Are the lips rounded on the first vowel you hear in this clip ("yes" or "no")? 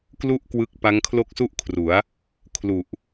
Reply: yes